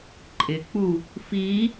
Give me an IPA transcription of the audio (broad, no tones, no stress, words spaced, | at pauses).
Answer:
ǃʼɪk͡pu | fi